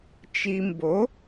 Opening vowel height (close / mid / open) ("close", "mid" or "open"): close